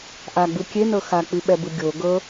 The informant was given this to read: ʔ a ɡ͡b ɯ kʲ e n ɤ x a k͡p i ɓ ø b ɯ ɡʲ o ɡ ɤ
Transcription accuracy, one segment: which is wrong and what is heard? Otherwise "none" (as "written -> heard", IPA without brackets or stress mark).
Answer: ø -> ɛ